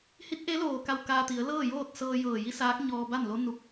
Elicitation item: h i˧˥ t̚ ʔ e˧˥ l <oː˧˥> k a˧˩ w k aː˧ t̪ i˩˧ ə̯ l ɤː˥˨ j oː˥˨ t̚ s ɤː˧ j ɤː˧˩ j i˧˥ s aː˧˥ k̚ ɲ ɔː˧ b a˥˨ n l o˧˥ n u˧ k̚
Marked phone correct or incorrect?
incorrect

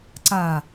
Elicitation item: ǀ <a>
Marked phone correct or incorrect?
correct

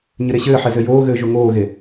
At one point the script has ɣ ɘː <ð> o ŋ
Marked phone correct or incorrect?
incorrect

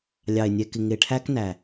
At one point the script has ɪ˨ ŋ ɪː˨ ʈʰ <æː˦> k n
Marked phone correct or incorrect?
correct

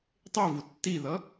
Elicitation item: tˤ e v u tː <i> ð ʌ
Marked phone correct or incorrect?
correct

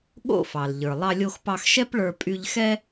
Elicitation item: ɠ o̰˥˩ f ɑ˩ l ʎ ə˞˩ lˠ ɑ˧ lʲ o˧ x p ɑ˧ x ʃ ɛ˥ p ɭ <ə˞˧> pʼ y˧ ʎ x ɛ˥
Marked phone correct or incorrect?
correct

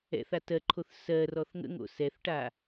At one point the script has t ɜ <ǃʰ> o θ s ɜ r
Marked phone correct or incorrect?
correct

